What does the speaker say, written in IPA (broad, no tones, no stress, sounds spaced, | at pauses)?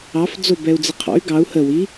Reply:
ɑ f d͡z o b ɛ u̯ d͡z ɪ qʰ ɔ̰ y̯ ɡ ɑ u̯ h ə w i